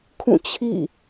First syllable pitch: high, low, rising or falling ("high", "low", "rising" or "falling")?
falling